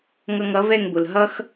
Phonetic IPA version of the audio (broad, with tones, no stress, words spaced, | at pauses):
ŋʌ˧ŋʌ˩˥vɛ˥˩ŋbʊ˩l ɦʌ˥x